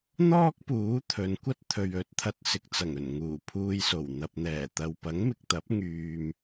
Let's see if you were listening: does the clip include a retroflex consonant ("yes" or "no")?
no